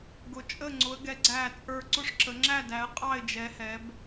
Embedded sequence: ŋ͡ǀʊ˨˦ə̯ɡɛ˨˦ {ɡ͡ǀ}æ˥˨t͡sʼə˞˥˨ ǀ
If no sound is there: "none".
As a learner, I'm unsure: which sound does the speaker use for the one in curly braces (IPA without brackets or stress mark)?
ɡ͡ǀ